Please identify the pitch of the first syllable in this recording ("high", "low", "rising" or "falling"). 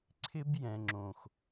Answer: high